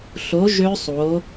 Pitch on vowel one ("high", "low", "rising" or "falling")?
rising